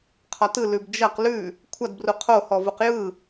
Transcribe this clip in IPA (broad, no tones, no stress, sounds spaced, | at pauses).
qʰ ɒ t ɯ l ʉ b d͡ʒ ɐ q l ʉ | kʷʰ ɐ d b r u qʰ o h ɔ v u q j ɯ